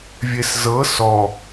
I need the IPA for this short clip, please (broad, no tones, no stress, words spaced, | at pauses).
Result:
vʲeszɤ sɔ